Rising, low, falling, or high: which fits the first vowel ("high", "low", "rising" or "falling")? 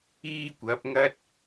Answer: high